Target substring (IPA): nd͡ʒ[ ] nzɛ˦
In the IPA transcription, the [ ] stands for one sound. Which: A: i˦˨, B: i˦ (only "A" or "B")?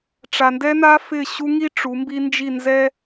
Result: A